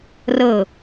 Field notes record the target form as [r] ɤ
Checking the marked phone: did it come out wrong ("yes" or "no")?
no